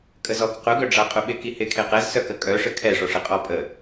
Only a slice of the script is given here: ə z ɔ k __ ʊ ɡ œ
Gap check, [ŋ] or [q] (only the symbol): q